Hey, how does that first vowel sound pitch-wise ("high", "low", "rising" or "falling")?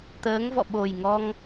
rising